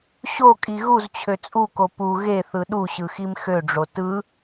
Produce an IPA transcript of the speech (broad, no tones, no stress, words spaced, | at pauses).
ɕokʼi ɣuzt͡ɕʰø t͡sʼuko pu ɣeθɯ ɗuɕɯxim xøɖ͡ʐo tɯ